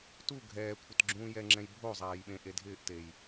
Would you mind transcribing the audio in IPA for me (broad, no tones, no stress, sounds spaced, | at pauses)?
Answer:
t u ɡʱ ɛː kʷʰ ɪ t ɡ͡ǁ ũː j ɛ ŋ͡ǁ ɛ̃ j bʱ o zˤ aː j ɓ ẽ ʔ e dʱ ɪː ʔ t e j